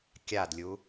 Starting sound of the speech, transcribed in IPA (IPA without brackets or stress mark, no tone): kʲ